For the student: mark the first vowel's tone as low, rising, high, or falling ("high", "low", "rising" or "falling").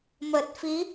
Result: low